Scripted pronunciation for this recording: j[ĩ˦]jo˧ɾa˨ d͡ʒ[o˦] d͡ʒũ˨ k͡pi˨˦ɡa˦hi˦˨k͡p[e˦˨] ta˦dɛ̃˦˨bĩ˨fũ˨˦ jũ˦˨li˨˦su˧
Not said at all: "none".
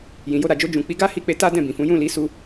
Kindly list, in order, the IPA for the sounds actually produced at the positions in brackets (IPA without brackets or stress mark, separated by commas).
ĩ˨, o˧, e˧